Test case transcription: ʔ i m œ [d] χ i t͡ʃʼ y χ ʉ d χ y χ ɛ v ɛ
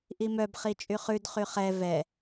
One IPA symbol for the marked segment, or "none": b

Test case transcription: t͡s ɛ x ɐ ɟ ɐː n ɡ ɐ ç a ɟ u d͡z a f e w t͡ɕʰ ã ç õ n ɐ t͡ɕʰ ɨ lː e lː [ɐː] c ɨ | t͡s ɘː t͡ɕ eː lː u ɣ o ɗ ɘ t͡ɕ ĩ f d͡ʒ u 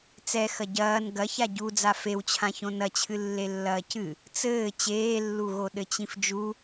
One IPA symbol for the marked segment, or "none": ɐː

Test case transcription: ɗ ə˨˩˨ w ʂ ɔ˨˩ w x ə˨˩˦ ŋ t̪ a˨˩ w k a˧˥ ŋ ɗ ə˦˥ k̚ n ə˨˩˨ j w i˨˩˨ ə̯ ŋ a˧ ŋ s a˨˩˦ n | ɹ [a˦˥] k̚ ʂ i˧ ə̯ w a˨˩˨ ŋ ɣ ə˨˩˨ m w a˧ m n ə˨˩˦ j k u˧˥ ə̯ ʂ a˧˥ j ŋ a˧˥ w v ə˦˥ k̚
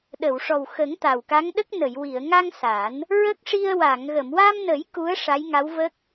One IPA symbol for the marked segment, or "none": ə˦˥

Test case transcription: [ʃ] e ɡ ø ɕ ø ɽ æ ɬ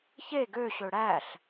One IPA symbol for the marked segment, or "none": ç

